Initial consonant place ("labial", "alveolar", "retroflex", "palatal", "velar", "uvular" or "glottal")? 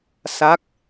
alveolar